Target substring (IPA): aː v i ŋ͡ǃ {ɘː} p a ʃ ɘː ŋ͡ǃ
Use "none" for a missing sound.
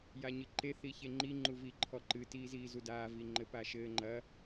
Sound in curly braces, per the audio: ɘ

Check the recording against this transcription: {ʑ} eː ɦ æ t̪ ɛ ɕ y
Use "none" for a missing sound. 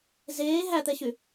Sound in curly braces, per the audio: z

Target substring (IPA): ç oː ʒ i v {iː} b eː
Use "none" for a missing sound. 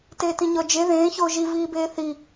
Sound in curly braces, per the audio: iː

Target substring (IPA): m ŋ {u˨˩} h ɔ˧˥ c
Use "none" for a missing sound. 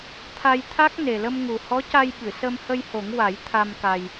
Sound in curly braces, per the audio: u˨˩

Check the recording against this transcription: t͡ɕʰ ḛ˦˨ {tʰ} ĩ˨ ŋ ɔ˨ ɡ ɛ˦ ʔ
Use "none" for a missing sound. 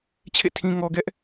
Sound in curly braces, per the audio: tʰ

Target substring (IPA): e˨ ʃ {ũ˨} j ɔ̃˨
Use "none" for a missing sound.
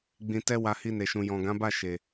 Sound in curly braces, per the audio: ũ˨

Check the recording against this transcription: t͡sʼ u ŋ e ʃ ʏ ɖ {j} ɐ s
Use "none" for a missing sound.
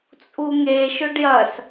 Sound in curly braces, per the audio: j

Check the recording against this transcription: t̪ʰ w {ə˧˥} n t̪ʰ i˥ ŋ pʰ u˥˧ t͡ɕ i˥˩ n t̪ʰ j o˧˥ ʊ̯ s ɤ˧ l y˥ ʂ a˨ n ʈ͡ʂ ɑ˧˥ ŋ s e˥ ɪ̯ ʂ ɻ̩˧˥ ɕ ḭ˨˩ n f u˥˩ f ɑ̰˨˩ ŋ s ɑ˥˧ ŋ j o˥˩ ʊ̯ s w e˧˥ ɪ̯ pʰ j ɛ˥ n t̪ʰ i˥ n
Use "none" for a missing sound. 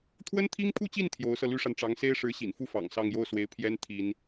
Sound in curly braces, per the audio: ə˥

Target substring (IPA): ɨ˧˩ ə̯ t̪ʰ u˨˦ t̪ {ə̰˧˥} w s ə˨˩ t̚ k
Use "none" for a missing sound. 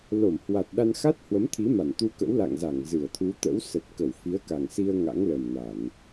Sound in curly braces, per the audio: ə̰˧˥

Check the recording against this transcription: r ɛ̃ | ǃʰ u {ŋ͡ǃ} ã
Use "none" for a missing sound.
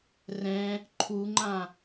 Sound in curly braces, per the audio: ŋ͡ǃ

